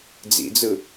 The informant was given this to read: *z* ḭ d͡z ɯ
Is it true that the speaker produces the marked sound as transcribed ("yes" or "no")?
no